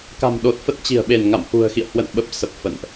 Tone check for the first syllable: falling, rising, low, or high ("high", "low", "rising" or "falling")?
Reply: low